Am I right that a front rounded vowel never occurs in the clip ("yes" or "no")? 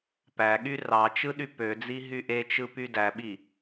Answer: no